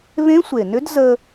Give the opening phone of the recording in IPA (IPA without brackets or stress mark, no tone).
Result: β